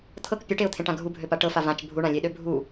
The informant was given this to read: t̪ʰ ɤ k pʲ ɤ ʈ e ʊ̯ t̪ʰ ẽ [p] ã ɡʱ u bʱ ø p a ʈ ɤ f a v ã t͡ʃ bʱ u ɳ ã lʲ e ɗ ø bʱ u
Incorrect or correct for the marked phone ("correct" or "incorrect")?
incorrect